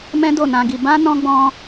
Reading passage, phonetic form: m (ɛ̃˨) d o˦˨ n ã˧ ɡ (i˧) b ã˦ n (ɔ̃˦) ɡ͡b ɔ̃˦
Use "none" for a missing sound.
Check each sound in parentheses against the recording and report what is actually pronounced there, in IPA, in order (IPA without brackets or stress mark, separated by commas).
ɛ̃˦, i˧, ɔ̃˦